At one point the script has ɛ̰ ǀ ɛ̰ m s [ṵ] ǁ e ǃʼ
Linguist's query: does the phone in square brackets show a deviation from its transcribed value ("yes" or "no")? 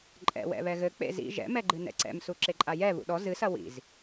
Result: yes